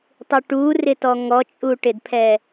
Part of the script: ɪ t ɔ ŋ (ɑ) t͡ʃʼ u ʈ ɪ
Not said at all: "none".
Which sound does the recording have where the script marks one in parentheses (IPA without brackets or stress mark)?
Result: ɔ